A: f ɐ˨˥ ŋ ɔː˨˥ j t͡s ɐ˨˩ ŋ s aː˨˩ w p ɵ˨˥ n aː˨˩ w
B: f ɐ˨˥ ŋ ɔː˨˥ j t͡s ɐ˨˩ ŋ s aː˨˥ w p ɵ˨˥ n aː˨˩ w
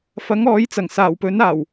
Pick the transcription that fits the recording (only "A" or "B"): A